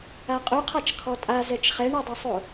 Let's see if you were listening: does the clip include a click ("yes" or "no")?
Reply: no